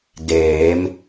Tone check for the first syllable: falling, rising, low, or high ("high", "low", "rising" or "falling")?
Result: rising